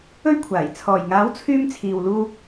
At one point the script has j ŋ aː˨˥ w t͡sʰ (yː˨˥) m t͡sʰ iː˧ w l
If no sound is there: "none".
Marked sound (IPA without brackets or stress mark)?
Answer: yː˧